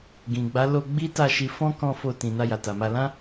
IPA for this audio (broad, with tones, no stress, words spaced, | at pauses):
ɡĩ˨ɡ͡ba˨˦ lo˧ ɡ͡bi˦ta˦˨ʃi˧ fɔ̃˦kɔ̃˧ fo˧tĩ˨ na˧ja˨ta˨ma˧ lã˦